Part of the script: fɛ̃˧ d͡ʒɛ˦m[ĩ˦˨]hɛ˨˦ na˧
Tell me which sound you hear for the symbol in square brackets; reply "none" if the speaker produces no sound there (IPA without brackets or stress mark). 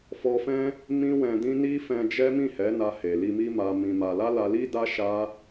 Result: ĩ˦˨